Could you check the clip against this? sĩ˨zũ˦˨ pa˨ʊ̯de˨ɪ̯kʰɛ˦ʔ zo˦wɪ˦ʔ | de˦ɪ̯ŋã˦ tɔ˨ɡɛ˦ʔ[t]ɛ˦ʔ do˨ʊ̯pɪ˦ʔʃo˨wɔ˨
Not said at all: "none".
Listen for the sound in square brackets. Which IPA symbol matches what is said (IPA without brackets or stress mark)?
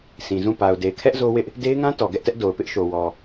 t